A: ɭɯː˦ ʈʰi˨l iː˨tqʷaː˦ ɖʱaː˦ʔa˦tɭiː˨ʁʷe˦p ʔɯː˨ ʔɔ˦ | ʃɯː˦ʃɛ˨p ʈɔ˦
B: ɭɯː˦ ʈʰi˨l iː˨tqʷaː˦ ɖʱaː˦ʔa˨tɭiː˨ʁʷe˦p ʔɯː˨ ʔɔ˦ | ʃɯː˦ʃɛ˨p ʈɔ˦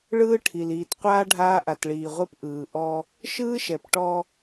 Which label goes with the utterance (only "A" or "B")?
B